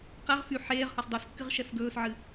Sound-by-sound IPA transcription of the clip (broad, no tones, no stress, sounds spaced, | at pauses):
q ɛ ʁ f y ħ eː ʁ h ɒ s dˤ ɵ s kː ɨ ʁ ʃ ɛ f ɡ ɵː s ʕ ɨ